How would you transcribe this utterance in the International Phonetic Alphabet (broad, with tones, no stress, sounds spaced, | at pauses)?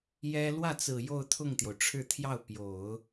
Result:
j ɛ˥ l w ä˥˩ t͡s ɹ̩˨˩ j o˥˧ ʊ̯ t̪ʰ ʊ˥˩ ŋ t̪ j o˩ ʊ̯ ʈ͡ʂʰ ɻ̩˥˧ t̪ʰ j ɑ˥˩ ʊ̯ p j o˨˩˦ ʊ̯